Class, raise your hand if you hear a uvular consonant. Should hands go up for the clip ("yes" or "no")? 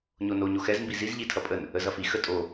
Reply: no